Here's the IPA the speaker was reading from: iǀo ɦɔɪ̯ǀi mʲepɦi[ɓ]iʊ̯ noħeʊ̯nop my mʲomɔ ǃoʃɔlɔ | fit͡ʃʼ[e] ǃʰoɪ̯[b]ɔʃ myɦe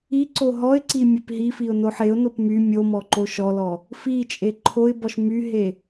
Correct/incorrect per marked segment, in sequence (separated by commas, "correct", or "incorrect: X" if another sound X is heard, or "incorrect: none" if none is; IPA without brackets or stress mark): incorrect: f, correct, correct